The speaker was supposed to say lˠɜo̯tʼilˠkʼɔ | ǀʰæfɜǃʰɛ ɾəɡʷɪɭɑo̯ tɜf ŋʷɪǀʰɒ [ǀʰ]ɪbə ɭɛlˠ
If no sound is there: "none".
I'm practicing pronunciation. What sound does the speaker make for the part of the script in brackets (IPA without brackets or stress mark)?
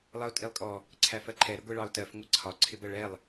ǀʰ